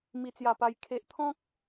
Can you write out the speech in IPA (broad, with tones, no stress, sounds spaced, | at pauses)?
m i˨˩ t͡s j a˨˩ p a˨˩ j kʰ e˨ ʔ t̪ʰ ɔ̃˦ k̚